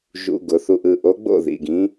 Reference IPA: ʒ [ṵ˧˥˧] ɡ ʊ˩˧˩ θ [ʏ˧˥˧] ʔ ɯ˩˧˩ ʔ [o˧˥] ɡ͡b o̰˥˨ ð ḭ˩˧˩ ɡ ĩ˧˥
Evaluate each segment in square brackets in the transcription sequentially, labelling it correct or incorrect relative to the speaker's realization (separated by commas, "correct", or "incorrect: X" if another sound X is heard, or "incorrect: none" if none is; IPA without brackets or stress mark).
correct, incorrect: u˧˥˧, correct